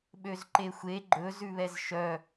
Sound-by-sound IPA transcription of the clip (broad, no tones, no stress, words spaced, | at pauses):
ɓøzǃexʷe ɡ͡ǃɵ zʉβɛzʃœ